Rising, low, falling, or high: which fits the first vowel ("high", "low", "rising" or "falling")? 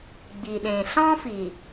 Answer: low